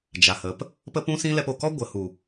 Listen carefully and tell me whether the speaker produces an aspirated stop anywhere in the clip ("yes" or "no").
no